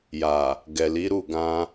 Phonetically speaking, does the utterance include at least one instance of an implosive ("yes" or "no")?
no